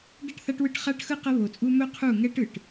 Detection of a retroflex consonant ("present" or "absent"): present